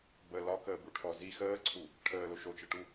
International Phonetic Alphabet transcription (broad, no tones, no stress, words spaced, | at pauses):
bə lɒkəːbuʈʰɔ zi xəːǀʰu | ʈʰəːlo ʃot͡ʃəʈu